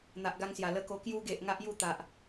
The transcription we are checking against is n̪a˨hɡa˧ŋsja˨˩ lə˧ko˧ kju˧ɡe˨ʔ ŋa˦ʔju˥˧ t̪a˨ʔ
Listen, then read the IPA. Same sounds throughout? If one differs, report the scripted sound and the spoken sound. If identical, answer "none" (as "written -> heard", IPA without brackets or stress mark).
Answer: h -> ʔ